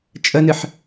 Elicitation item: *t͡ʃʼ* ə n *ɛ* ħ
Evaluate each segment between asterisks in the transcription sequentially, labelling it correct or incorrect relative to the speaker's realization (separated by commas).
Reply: correct, incorrect